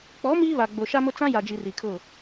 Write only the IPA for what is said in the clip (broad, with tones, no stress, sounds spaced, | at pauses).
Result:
k͡p ɔ˨˦ m iː˦ β a˨ ɡ͡b o˨ ʃ a˦ m ʊ˦ t͡s ã˦ j a˨ d͡ʒ i˨ r i˨ kʰ ʊ˦˨